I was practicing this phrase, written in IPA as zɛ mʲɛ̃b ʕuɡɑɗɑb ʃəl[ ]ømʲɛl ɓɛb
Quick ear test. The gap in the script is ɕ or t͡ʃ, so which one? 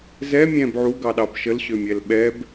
ɕ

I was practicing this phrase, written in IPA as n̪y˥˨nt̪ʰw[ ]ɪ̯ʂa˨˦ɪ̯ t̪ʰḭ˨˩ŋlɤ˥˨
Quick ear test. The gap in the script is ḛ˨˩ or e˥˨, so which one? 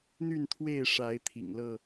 e˥˨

